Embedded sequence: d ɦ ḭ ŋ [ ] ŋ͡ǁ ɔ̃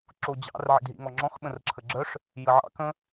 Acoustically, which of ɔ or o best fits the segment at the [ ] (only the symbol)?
ɔ